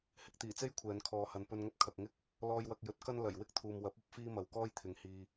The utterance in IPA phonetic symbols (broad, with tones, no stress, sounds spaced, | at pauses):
h ɪ˨ k̚ t̪ iː˨˩ t͡s e˥ j kʷʰ ɛː˨˧ n kʰ ɔː˨˧ h ɐ˨ n p ɵ˧ n ŋ ɐ˥ p̚ kʰ ɐ˨ k̚ ŋ ɪ˥ k̚ | l ɔː˧ j w ɐ˧ k̚ j ɵ˨˥ t̚ k ɐ˥ n l ɐ˨˩ j w ɪ˥ k̚ t̪ʰ uː˨ m w ɐ˨˥ p̚ ɐ˨˥ p̚ f iː˥ m ɐ˨ w k ɔː˥ j t̪ʰ ɪ˨ ŋ h iː˧